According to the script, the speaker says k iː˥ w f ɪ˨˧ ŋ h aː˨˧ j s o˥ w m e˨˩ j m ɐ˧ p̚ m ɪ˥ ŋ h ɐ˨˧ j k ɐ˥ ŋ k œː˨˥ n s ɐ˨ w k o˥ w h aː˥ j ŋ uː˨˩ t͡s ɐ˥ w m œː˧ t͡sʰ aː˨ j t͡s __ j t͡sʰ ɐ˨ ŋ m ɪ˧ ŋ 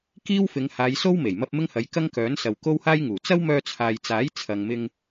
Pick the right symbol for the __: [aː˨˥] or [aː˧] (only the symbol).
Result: aː˨˥